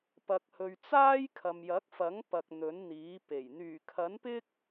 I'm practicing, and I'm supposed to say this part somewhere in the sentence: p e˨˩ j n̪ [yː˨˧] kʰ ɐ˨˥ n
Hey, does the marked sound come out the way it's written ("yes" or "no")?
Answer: no